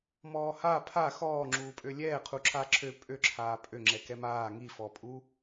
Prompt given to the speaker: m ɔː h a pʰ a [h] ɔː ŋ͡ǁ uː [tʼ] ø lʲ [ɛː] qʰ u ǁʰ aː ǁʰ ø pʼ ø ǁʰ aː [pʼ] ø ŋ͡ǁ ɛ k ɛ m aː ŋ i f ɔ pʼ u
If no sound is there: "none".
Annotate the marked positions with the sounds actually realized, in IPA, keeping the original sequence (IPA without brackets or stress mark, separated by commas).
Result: x, pʼ, ɛː, pʼ